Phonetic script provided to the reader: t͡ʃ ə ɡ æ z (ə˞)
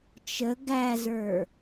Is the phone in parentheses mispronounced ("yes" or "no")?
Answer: no